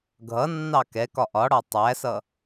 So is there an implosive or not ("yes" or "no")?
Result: no